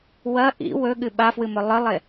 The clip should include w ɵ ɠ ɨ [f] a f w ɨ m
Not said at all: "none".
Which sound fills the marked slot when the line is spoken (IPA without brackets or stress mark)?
ɓ